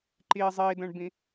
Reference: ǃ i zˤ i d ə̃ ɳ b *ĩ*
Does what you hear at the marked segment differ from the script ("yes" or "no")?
no